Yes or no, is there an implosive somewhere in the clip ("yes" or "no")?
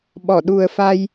yes